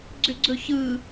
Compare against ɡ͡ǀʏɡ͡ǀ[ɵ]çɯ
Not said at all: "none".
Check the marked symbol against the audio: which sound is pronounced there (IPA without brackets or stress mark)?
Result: ɵ